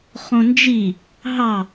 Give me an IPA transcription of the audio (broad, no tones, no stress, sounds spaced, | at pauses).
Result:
χ õ n d͡ʒ i | ɦ ɑ